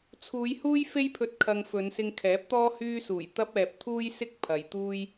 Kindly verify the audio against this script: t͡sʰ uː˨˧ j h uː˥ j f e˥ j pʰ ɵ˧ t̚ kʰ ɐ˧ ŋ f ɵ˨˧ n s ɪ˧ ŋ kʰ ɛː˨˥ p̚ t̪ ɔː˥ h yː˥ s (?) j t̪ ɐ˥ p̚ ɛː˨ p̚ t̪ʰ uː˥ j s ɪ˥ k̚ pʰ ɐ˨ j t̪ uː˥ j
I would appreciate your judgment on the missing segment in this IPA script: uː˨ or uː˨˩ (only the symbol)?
uː˨˩